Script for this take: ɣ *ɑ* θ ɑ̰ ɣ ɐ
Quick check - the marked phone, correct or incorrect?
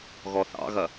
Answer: incorrect